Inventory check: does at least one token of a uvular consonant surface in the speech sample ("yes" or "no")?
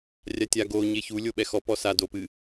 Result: no